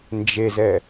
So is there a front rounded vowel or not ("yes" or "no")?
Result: no